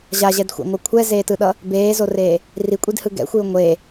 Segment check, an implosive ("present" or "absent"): present